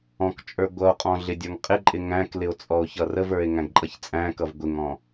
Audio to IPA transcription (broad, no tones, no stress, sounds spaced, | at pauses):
ɔ̃ k t͡ʃʼ ə˞ ɡʷ ʌ o̯ qʼ ɔ̃ ɮ ɪ dʲ ə˞ ŋ qʼ ɪ ǃʼ ɪ ŋ æ̃ k l ɪ o̯ t͡sʼ ɔ o̯ ç ʌ r ə v ə˞ e̯ ŋ æ̃ ɡ ǃʼ ʌ ç t͡sʼ æ̃ k ʌ v ɡʷ ɪ ŋ ɔ̃